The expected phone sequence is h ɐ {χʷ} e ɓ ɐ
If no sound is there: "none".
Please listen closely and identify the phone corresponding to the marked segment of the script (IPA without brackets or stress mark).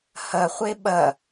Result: χʷ